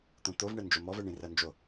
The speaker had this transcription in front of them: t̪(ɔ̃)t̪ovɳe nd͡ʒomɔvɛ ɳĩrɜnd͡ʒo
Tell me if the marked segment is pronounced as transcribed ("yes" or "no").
no